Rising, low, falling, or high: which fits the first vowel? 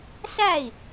falling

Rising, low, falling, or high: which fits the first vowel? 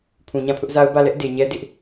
low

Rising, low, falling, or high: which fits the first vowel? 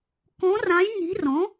rising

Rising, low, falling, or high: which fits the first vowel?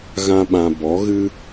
high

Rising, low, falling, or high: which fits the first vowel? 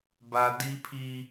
high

